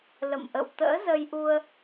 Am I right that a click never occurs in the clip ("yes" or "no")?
yes